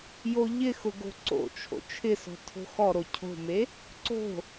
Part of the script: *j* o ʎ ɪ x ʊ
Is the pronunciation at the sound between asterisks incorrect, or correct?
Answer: correct